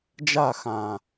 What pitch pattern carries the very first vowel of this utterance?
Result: falling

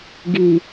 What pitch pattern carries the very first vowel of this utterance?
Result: low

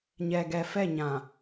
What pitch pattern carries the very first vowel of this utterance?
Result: low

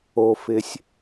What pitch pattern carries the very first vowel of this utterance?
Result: low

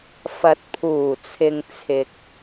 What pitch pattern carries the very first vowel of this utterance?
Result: rising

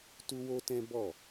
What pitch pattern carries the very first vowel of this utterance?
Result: high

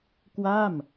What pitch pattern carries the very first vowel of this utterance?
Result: falling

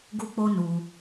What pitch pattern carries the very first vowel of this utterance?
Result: high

